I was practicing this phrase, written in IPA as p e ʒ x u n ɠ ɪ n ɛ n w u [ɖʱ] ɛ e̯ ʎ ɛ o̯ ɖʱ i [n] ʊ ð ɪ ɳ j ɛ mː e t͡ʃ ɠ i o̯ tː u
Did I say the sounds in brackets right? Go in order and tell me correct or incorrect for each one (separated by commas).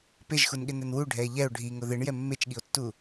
correct, incorrect